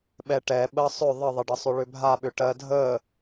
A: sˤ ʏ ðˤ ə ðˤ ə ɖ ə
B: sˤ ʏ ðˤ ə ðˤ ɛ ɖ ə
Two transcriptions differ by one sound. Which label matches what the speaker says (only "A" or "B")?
A